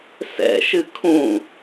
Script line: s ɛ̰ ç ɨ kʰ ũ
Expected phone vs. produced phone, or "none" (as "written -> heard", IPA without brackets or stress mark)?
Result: ç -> ʃ